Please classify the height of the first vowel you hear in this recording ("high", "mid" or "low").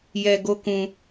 mid